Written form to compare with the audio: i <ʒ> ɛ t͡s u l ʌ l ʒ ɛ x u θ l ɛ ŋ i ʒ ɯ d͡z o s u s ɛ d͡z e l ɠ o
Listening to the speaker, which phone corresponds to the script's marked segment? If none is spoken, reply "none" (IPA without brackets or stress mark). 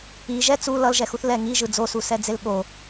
ʒ